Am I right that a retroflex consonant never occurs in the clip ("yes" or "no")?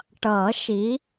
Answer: no